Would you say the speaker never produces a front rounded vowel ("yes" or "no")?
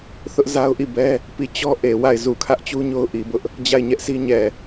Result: yes